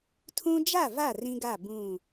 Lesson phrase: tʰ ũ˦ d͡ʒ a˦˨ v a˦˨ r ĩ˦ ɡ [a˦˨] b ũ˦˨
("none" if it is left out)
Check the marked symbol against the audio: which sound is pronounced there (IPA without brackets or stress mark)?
a˦˨